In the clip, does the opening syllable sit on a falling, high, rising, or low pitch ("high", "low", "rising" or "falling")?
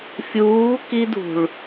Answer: rising